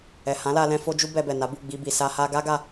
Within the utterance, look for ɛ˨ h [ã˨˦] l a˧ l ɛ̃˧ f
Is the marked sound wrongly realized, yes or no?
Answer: no